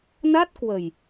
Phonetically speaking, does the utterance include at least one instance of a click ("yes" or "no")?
no